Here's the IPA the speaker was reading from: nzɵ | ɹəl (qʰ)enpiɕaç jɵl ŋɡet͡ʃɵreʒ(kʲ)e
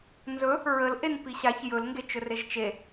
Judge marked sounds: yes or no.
no, no

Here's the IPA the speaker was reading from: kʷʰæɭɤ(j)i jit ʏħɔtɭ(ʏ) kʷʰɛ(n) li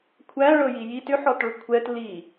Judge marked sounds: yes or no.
yes, yes, no

